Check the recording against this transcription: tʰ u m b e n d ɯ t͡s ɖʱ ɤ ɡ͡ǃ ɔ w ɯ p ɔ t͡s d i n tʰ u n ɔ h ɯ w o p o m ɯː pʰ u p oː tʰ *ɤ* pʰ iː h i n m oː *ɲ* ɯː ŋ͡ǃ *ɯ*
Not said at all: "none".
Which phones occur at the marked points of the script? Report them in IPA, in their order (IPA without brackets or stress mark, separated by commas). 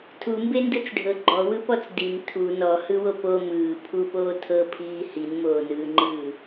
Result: ɤ, n, ɯː